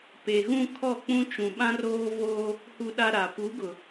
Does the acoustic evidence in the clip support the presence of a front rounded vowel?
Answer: no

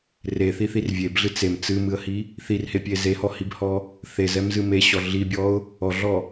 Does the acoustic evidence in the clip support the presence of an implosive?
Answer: no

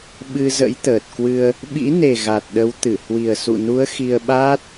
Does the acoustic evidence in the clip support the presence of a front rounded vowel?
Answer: no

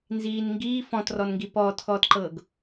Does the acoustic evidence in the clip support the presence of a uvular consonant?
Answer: no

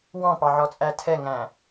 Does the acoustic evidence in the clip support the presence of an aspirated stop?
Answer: yes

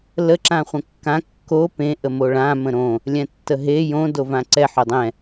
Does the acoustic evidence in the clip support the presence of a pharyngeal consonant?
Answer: yes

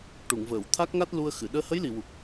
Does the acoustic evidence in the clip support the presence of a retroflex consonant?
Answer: yes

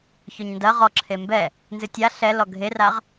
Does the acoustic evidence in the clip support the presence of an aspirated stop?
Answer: yes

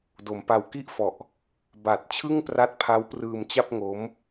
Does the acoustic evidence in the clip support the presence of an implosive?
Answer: no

